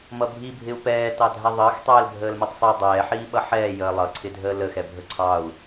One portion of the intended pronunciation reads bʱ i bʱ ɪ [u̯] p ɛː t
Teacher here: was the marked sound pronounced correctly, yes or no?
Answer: yes